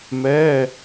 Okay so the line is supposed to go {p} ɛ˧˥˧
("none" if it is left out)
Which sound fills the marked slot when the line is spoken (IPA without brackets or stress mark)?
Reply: m